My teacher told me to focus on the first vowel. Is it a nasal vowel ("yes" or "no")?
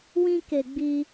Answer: yes